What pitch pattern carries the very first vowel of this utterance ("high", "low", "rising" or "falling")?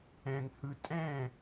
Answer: low